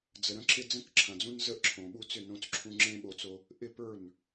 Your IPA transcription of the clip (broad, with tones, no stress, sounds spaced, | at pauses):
d͡z ə˨ ɾ ə̃˦ ǁ ɪ˦ d͡z ə̃˥˩ k ǁʰ ɐ̃˨ d͡z ũ˦ n z ə˦ ʔ ǁʰ õ˨ ɓ u˥˩ t͡s ʏ˥˩ n õ˦ t͡s ǁʰ ũ˦ ŋ͡ǁ ẽ˦ ɓ o˦ t͡s o˦ | ʔ ɪ˥˩ p ə˞˥˩ n